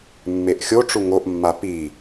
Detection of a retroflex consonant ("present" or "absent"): present